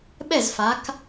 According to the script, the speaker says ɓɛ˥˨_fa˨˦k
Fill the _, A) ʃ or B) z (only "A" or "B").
B